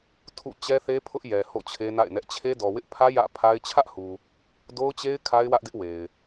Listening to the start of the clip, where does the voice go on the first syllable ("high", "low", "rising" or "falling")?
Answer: falling